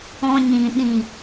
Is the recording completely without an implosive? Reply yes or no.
no